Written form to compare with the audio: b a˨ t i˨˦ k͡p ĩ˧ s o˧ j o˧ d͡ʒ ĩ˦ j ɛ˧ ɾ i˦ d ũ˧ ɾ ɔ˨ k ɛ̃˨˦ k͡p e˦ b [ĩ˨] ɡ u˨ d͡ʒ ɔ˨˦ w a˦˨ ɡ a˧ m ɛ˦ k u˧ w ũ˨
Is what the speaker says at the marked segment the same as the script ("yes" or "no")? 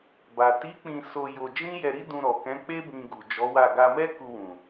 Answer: no